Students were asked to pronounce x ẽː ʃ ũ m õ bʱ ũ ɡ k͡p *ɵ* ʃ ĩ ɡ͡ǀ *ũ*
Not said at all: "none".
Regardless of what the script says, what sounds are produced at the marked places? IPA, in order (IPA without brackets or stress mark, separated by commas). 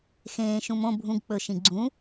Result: ɵ, ũ